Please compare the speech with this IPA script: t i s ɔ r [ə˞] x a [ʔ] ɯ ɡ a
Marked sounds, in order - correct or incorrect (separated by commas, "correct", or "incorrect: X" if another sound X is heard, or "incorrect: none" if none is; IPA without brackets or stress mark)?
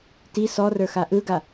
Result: correct, correct